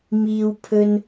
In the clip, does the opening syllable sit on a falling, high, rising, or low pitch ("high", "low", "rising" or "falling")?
high